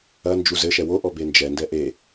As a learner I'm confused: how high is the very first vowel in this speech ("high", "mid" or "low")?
low